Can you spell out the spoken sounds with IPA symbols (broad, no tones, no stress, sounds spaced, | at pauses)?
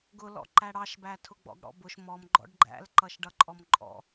ɡ ʊ l ɔ̰ ǃ æ ɽ ɑ ʃ b æ tʰ ʊ ɡ͡b ɔ̰ ɡ ɽ ɔ̰ b ʊ ʃ m ɔ m ɡ͡ǃ ɔ̰ ɖ ɡ͡ǃ æ̰ l ǃ ʌ ʃ ɖ ʌ ǃʼ ɔ m ǃʼ ɔ̰